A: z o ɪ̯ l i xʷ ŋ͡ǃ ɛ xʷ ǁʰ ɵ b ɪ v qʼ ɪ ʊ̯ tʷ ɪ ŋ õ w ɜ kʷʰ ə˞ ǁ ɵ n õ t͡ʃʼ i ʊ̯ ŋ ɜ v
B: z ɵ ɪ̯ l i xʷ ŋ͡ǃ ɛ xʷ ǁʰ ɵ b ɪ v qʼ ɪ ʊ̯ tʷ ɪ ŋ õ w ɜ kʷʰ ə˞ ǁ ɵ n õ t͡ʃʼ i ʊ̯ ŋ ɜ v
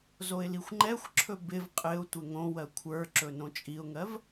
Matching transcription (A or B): A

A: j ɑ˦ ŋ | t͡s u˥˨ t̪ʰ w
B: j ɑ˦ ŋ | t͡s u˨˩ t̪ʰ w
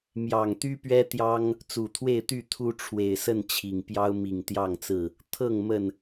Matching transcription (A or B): B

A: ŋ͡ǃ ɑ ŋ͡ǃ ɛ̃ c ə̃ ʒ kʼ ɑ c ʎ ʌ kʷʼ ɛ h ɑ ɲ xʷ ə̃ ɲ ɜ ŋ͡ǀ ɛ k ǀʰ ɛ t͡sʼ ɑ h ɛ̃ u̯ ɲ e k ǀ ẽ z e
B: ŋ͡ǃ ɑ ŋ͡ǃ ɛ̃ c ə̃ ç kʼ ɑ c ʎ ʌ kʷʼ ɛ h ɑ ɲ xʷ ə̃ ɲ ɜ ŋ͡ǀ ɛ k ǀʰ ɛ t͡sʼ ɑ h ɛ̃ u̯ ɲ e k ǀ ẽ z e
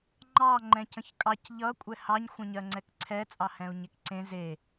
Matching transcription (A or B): B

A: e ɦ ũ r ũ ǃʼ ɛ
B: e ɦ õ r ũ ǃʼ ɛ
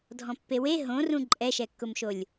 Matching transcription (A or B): B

